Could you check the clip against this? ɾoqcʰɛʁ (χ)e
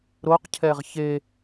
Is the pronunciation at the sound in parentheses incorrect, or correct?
incorrect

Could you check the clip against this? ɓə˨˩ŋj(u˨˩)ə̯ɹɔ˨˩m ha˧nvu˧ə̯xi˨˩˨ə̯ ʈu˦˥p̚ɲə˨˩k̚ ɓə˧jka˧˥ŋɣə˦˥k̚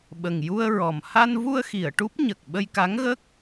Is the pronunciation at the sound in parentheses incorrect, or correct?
incorrect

